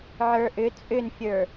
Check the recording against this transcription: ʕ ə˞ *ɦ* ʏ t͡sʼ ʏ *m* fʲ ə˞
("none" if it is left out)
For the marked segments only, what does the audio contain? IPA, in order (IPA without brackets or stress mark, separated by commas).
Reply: ʔ, n